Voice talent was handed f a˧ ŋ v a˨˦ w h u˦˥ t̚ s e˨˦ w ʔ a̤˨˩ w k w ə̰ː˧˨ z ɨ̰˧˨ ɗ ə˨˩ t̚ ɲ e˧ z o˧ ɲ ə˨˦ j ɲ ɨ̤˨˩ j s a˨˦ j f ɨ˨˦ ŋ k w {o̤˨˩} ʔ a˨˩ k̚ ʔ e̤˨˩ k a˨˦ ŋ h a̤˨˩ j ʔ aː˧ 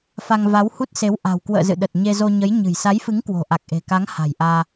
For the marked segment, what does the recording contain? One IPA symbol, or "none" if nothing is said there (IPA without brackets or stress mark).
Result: o̤˨˩